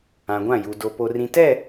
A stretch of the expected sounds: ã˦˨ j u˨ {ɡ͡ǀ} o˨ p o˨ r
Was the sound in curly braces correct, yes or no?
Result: no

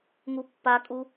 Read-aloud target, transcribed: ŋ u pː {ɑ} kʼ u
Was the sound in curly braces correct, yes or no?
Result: no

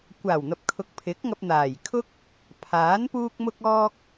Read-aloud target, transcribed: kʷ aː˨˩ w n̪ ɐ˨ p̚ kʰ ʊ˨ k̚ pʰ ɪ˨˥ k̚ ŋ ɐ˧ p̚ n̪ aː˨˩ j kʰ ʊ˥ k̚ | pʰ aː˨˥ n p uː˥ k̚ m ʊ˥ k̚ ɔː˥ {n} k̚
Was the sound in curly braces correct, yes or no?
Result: no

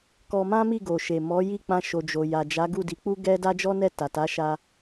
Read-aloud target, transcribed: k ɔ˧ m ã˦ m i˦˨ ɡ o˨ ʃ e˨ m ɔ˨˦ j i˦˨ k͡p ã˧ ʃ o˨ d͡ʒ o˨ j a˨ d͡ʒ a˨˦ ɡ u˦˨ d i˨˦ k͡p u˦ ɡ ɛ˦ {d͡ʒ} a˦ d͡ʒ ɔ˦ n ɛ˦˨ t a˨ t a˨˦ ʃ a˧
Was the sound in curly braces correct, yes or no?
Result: no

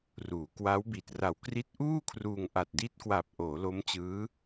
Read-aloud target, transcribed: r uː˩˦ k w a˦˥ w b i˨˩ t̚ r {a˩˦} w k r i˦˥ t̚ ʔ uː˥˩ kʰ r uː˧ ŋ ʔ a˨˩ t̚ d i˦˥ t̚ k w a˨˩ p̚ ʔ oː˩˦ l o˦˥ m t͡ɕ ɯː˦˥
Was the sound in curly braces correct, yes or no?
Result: no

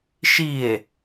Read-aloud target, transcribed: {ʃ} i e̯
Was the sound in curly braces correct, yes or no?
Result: yes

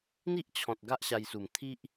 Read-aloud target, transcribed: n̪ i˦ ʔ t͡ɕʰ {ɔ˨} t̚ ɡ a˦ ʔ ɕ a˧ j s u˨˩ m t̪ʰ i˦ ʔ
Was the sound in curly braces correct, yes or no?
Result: no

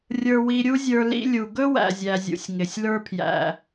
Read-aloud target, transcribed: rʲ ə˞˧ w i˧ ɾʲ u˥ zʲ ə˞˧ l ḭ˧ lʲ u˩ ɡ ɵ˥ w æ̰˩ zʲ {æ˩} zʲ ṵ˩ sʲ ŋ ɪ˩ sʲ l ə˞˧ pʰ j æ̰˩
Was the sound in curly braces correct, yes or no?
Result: yes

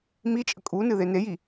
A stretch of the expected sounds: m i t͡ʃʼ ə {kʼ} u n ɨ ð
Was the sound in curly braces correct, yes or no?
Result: yes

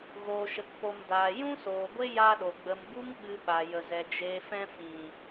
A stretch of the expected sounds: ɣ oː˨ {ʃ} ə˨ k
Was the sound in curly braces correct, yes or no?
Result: yes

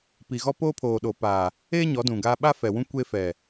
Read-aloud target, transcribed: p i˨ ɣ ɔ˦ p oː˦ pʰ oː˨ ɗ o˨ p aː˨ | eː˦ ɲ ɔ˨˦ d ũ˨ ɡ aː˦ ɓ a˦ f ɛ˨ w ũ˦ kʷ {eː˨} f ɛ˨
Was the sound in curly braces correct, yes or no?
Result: no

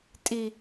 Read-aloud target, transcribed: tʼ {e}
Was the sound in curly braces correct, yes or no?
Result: no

